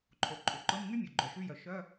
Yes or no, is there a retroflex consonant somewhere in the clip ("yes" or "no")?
no